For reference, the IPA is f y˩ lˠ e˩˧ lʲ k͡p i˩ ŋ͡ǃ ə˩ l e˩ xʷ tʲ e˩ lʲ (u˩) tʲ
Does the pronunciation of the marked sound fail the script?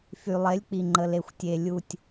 no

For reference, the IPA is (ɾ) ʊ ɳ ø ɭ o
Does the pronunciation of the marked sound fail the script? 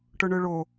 yes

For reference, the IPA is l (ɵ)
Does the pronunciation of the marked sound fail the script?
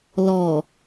yes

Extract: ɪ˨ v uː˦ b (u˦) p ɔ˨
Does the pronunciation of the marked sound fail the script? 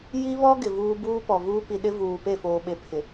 yes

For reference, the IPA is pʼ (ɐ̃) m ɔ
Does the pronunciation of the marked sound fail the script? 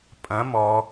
no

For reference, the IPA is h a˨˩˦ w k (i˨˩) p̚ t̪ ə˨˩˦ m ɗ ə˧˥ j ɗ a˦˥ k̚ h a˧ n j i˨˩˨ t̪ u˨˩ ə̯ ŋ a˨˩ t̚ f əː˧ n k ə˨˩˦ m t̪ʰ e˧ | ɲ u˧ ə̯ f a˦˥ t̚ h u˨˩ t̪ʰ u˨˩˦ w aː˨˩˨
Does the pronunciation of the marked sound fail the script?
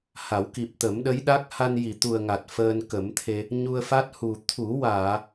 no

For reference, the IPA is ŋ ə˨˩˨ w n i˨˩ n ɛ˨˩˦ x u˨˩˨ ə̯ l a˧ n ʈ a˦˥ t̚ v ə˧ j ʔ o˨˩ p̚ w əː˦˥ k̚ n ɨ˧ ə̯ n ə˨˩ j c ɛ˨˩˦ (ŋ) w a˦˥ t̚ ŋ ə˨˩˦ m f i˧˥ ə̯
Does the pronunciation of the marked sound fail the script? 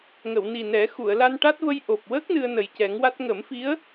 no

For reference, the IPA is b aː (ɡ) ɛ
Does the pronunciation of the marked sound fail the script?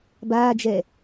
yes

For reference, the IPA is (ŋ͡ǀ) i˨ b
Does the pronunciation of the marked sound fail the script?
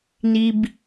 yes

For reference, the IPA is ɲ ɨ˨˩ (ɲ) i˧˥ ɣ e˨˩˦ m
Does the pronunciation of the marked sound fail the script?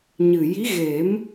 yes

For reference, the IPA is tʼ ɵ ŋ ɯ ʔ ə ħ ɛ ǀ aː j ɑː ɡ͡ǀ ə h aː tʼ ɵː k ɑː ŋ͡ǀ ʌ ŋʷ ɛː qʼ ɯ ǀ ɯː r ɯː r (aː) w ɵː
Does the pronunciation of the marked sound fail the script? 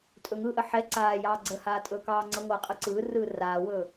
no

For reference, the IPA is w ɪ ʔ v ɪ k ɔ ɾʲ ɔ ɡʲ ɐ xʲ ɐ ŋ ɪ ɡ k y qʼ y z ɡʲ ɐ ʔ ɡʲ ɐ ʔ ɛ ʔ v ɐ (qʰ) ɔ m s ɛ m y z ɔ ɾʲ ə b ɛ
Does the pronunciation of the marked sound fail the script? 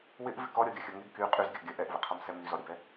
no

